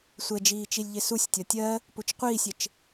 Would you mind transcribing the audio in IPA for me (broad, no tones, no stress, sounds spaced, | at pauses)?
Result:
sʷ ɛ d͡ʒ iː t͡ʃ i lʲ ʎ ɪ s u sʲ tʲ ɒ tʲ ɜ | p u t͡ʃ qʷ iː sʲ ɪ t͡ʃ